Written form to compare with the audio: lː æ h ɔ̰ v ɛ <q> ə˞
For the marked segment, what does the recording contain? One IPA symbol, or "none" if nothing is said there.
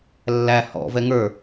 ŋ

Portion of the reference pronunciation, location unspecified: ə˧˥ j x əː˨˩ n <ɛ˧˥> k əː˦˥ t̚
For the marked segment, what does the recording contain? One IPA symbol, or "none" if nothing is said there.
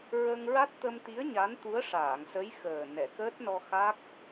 ɛ˨˩˨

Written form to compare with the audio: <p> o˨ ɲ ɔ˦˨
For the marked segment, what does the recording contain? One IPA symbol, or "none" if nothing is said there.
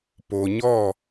p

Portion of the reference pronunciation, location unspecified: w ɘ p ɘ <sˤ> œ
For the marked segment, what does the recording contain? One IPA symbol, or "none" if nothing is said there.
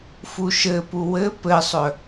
sˤ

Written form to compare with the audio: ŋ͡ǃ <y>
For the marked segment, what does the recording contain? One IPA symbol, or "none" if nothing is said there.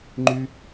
y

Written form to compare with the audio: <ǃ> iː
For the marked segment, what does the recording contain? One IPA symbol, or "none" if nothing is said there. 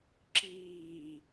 ǁ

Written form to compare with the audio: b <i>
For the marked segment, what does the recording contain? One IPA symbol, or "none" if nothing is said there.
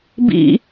ḭ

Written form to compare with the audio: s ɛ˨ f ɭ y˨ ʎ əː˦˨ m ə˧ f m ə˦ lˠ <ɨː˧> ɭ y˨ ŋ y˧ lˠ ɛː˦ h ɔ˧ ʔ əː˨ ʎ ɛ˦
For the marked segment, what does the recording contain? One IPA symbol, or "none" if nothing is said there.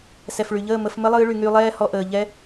ɨː˧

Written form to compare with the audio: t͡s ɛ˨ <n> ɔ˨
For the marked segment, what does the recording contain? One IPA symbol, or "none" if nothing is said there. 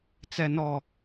n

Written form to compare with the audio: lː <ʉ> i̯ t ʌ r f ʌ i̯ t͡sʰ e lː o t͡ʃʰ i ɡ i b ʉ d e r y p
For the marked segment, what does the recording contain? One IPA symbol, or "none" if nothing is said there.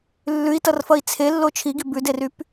ʉ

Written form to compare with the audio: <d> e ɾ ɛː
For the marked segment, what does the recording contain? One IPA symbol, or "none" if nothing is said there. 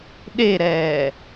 ɗ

